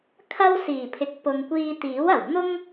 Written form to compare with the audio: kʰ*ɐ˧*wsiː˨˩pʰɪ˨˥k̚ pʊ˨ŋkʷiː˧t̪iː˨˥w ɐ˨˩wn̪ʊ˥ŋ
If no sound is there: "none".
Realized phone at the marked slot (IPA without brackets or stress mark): ɐ˥